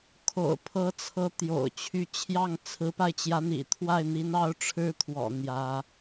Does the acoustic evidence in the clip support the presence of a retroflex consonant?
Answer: yes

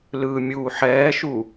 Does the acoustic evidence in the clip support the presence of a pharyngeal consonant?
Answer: yes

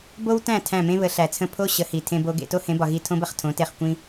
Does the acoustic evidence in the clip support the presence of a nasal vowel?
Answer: yes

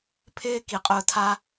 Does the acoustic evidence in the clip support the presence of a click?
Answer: no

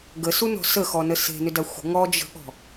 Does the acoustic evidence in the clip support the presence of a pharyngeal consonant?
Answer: no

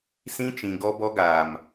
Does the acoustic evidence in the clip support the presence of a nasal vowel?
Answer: yes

